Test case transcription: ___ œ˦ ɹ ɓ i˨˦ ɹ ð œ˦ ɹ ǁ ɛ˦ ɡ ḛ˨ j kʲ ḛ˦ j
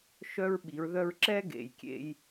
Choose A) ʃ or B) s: A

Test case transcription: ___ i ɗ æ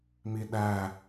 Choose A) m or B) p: A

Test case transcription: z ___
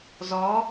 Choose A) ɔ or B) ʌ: A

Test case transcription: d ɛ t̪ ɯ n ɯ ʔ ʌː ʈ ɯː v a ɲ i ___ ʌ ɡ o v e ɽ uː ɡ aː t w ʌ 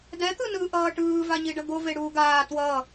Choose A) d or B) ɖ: B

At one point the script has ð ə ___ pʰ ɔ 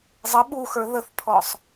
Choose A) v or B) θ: B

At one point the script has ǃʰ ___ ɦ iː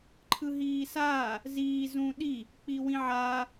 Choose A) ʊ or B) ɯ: B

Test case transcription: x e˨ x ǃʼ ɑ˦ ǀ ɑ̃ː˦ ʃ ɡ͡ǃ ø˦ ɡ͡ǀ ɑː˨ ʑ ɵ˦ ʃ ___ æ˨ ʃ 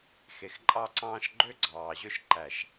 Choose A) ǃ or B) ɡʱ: A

